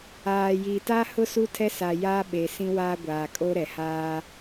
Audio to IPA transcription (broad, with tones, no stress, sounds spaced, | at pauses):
aː˨ j iː˨ t a˦ h ʊ˦ s u˦ tʰ ɛ˦ s a˨ j aː˦ ɓ e˨ s ĩ˦ w aː˦ ɡʷ aː˨ kʼ o˦ ɾ ɛ˨ h aː˦